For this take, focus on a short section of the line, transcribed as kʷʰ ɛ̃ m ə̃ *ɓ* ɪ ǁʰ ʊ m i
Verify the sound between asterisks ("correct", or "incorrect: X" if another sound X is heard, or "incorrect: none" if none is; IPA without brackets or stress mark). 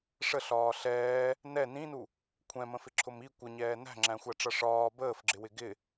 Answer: incorrect: f